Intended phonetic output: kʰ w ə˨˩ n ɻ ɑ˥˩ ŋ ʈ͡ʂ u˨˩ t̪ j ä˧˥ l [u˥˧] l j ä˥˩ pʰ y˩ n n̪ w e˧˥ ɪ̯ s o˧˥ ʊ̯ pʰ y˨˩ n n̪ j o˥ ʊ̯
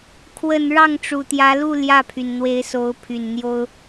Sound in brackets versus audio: correct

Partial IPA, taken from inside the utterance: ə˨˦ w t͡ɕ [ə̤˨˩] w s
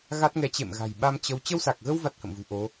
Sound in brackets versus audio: incorrect: ə˧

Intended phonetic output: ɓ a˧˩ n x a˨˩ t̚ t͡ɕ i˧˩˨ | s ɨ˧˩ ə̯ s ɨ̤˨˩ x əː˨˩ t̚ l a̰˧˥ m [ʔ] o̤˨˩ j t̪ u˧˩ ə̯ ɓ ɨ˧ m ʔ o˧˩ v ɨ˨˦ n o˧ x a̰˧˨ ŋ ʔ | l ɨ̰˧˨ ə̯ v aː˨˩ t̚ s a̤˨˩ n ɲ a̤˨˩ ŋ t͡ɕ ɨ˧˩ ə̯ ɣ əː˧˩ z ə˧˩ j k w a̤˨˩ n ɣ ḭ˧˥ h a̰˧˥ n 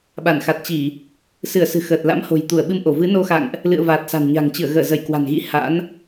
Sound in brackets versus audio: incorrect: h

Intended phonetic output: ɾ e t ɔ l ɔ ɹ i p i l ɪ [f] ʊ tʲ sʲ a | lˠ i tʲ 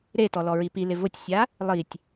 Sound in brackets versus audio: incorrect: v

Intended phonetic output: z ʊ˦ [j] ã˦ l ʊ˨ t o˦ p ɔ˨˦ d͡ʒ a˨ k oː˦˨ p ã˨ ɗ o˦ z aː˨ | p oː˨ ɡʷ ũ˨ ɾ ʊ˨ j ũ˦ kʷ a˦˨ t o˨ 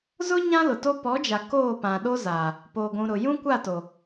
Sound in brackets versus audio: incorrect: ɲ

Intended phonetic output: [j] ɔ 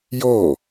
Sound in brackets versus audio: correct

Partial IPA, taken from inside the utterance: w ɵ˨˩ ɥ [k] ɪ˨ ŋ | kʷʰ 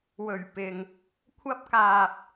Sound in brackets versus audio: incorrect: p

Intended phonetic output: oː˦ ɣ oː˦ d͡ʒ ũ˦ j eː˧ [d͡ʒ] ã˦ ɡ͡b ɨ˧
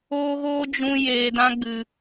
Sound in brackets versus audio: incorrect: d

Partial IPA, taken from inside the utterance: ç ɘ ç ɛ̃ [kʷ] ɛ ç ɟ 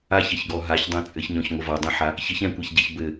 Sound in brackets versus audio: correct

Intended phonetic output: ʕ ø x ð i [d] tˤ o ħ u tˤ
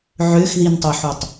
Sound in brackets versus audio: incorrect: n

